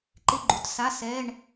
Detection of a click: present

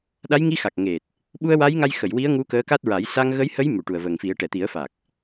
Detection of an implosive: present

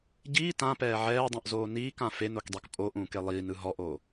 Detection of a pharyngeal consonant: present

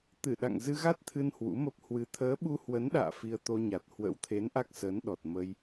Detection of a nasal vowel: absent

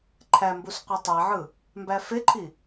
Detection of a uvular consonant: present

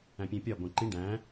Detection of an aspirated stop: absent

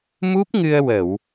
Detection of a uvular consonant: absent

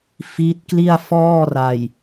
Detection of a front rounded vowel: absent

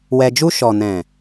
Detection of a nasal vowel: present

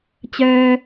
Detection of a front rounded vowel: present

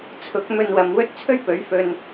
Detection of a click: absent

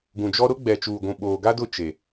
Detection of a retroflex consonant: absent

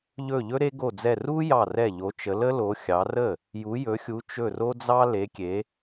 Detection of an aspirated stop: absent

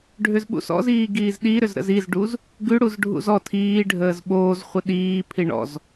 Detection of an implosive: present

